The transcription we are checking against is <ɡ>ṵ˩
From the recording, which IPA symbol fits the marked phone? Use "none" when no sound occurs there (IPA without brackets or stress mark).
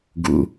ɡ